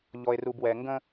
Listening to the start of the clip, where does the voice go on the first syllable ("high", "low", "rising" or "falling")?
low